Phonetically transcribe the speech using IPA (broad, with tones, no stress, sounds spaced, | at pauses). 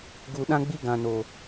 ɡ u˨ ɗ ã˦ ɡ͡b i˦ ɡ ã˨ n o˨